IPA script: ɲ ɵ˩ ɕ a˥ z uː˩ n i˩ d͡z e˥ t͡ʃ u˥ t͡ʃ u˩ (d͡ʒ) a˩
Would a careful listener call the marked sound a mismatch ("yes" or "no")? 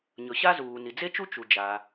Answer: no